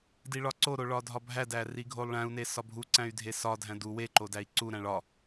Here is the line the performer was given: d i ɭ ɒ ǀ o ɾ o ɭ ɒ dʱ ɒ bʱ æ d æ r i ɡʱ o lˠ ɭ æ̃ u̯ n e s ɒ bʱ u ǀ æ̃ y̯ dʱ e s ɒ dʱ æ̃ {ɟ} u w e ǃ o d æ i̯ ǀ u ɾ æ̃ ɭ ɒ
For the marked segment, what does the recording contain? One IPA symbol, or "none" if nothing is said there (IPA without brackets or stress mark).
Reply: d